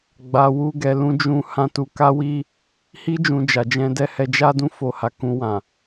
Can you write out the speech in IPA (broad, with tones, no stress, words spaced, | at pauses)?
ɡ͡ba˧ wu˦ɡɛ˧lũ˦ d͡ʒũ˦ hã˦tu˧ ka˦wi˦ | hi˦ d͡ʒũ˧d͡ʒa˨d͡ʒɛ̃˧dɛ˦ hɛ˧d͡ʒa˦dũ˦˨ fo˧ha˨kũ˧wã˨